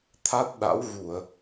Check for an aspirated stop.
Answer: present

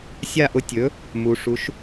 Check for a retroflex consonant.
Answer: present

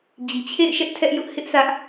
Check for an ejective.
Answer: absent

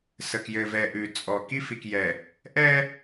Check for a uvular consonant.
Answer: absent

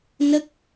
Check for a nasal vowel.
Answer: absent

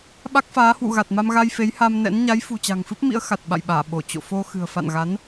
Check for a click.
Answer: absent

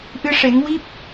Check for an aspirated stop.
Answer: absent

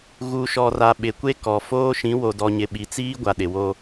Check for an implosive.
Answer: present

